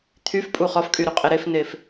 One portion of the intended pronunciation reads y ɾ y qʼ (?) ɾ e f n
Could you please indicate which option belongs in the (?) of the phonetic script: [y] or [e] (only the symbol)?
e